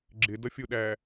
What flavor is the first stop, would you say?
click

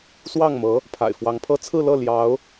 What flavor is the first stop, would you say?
aspirated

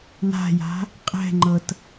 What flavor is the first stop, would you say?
ejective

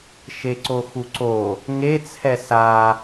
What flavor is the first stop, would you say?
click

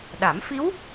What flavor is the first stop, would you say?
implosive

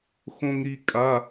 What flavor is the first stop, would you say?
ejective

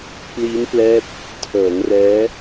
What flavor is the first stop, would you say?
plain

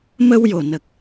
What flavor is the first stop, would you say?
plain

